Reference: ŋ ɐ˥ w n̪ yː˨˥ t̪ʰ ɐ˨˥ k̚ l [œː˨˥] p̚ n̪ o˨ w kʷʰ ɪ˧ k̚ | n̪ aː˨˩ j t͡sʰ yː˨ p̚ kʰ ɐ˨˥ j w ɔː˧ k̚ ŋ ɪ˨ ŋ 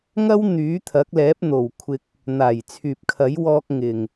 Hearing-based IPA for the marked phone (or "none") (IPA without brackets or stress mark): ɛː˨˥